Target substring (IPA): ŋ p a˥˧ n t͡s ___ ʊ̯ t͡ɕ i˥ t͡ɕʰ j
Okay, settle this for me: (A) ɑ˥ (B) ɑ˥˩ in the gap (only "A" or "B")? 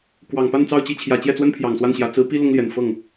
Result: B